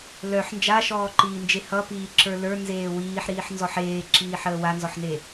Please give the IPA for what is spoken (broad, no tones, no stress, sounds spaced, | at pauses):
l œ ħ n d͡ʒ a ʃ ɔː ǃ iː n d͡ʒ e h ʌ p iː ǁ ə˞ l ə˞ n z eː w iː ħ ɾ iː ħ n z ɔ ħ eː ǁ iː ħ əː w a n z ɔ ħ n e